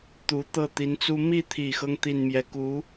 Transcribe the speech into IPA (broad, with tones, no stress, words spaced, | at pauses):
t̪u˧˥ t̪ɤ˥˩t̪i˧˥nt͡su˥ mi˥˩t̪ʰi˨˩xɤ˦ŋ t̪i˥˧nmjɛ˥˩ ku˧˥